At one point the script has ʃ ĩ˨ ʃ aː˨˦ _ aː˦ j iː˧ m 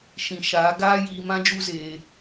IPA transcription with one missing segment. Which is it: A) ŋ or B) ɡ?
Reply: B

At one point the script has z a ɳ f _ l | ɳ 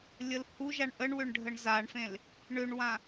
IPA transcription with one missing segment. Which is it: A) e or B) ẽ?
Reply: B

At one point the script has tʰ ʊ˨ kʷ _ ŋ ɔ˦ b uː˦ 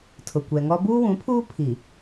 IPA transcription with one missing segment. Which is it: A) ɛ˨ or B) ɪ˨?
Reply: A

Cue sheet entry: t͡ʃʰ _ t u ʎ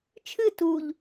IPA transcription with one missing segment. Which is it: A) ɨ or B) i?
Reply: A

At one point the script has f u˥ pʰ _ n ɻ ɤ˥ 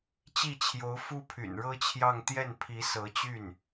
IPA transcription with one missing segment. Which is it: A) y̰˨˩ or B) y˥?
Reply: A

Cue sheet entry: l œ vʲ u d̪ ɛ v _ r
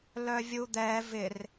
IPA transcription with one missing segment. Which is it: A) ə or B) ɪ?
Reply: B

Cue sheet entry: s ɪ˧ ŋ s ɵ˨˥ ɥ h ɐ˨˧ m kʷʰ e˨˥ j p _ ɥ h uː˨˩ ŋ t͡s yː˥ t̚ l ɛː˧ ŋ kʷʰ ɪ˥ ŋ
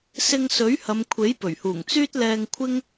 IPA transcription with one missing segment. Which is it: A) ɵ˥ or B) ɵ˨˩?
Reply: B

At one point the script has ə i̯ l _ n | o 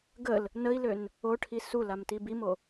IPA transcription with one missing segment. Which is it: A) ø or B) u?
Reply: A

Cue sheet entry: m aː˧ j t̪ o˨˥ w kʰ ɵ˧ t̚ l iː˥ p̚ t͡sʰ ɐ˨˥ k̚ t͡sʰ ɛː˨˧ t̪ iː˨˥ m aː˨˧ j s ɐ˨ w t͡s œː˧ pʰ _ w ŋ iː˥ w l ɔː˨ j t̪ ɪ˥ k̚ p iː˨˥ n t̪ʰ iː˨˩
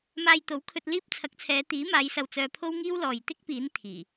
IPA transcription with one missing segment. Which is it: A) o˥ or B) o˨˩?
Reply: A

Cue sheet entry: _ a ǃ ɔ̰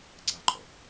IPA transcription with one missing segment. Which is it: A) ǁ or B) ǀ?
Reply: B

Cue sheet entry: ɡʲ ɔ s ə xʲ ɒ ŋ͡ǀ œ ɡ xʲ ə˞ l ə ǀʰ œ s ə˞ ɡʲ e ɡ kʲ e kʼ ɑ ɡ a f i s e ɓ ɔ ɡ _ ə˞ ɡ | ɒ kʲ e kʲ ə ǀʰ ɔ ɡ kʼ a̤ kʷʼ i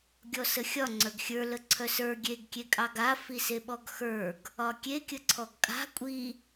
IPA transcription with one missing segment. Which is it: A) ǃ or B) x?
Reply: B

